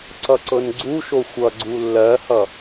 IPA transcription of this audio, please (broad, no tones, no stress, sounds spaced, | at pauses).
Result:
ǀ ʌ ǀ ɤ n ɡ͡ǀ u ʃ o xʷ ʌ ɡ͡ǀ u lː ɜ h ʌ